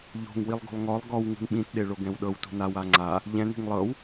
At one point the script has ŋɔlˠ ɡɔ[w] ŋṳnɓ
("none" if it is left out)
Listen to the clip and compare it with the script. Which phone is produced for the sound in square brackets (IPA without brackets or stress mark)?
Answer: w